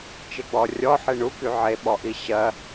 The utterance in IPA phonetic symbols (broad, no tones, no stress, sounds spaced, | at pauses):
t͡ʃ e ɡ͡b ɔ rʲ ɔ ħ e ɳ u k y ʕ e ɓ ɔ ʔ i ɕ ɜ